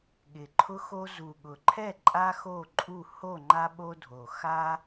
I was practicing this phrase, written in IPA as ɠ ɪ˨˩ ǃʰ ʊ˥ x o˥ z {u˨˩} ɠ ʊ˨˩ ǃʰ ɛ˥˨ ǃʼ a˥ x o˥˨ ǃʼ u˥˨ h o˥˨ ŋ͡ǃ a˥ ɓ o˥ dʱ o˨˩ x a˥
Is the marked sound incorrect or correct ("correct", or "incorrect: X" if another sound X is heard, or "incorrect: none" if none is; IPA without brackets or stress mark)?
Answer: correct